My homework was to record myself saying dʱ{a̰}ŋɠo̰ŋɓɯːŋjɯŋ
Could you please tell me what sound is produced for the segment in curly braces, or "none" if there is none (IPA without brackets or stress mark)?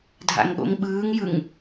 a̰